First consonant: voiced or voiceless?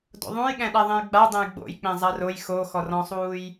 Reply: voiced